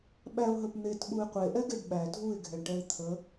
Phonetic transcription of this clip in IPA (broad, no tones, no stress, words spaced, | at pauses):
ɓæʊ̯ɦəp n̪etɓuɪ̯ qʷeʔɛɡeɖ ɓæ dʱuɪ̯ɡʱɛɳʈɛɪ̯ t̪ʰə